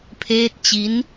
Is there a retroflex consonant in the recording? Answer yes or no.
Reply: no